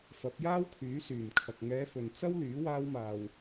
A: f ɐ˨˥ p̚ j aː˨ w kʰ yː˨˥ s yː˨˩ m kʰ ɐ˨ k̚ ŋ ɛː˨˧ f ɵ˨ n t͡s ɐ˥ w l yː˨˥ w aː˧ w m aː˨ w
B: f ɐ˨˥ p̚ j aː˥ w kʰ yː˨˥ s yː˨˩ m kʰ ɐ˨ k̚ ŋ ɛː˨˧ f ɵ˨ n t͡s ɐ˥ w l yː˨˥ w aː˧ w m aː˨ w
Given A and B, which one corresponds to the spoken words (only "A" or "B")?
B